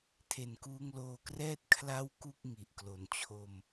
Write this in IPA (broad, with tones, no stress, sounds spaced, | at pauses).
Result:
tʰ e˨˩ n k uː˧ ŋ l oː˧ k r ɛː˥˩ t̚ kʰ l a˥˩ w k u˥˩ k̚ ŋ i˨˩ ʔ k l o˨˩ n t͡ɕʰ o˧ m